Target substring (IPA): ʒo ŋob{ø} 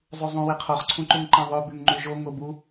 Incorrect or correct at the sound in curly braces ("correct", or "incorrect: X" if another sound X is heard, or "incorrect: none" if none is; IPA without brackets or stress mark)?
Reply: incorrect: u